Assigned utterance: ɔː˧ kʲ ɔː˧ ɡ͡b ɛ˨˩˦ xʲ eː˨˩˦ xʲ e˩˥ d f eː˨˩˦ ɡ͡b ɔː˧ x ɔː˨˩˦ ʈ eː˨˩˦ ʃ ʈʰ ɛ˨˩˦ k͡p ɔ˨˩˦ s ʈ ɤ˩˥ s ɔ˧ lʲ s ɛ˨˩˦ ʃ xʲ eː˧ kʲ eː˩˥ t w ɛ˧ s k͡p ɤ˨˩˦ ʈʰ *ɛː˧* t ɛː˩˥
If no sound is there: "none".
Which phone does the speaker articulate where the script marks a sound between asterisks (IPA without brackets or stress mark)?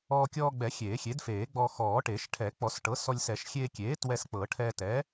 ɛː˧